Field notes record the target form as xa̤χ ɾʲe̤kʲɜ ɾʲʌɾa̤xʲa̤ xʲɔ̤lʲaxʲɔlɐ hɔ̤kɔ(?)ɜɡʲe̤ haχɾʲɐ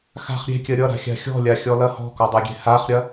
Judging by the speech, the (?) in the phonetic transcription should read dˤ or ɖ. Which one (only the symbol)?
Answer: dˤ